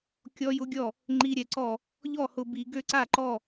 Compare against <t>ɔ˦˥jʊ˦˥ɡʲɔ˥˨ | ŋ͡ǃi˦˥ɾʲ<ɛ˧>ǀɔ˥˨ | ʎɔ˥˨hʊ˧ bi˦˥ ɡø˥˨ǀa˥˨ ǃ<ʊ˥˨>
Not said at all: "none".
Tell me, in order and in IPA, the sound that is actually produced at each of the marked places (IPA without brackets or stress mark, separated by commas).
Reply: kʲ, ɛ˧, ɔ˥˨